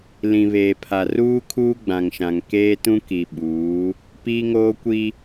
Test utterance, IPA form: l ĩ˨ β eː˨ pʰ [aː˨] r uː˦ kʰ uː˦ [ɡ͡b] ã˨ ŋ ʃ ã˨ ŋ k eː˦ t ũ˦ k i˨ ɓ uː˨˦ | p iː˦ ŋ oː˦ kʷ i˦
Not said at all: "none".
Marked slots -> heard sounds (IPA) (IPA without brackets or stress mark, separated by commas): a˨, ɡ͡b